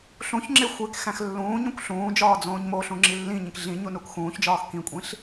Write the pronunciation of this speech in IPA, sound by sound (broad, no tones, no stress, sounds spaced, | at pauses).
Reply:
ɬ ũ ç ŋ͡ǁ e xʷ e k x æ̃ x lː ũː ɲ õ kʷ ɬ ũː d͡ʒ ɒː d͡z õː ɲ m o ɬ ũ ŋ͡ǁ i lː ĩ ɲ ĩ k ɮ ĩ ɲ u n u k x ũː ç d͡ʒ ɒː x k ĩ kʷʼ ĩ ɬ